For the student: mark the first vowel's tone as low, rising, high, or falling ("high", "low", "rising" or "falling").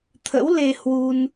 rising